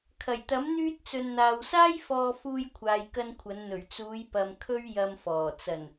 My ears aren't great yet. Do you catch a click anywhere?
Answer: no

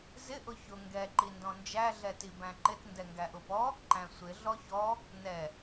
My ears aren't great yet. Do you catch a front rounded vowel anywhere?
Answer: no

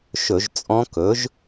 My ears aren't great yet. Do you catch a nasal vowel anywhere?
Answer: yes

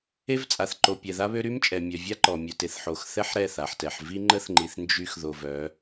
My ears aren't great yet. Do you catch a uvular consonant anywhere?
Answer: no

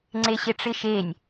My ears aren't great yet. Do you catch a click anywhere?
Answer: yes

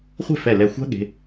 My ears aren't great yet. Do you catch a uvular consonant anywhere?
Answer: yes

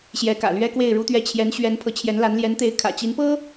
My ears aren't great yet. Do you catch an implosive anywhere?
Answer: no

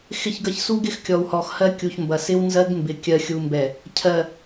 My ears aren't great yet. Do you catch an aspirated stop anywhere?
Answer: yes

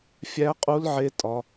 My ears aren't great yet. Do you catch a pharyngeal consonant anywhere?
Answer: yes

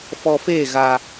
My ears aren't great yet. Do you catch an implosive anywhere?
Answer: no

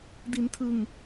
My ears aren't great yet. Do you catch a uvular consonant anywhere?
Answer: no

